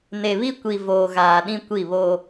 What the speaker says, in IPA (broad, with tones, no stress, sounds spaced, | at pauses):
n e˨ β i˦ kʷ i˨ v oː˨ ɣ aː˨ ɗ ĩ˦ kʷ i˦˨ β oː˦